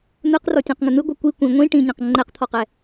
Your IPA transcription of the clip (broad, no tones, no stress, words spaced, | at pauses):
n̪ɯqrɔtʲɔ̃qŋə n̪ɯɡʷɤ kʷi kʷĩ ŋʷĩ ʈĩɲɛ̃q ŋ͡ǃɛqt̪ʰɔqɛ